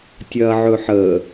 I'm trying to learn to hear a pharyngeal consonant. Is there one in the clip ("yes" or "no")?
yes